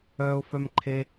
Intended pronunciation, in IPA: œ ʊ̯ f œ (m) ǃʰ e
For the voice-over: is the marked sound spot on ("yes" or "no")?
yes